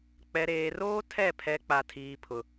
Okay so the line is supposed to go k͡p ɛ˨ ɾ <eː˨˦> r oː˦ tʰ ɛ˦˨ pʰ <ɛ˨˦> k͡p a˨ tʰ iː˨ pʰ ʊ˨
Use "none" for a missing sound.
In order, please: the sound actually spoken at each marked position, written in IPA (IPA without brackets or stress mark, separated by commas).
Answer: eː˨, ɛ˨˦